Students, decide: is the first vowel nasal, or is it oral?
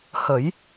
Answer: oral